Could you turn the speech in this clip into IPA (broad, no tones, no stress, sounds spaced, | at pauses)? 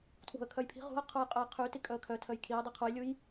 tʰ w o̤ ə̯ kʰ œ j pʰ i̤ ʁ ṳ ə̯ qʰ u j qʼ œ j qʰ y t i kʼ œ ə̯ kʰ œ tʰ œ j kʰ i ə̯ dˤ i qʰ u j lʲ u j